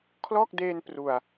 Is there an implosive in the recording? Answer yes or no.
no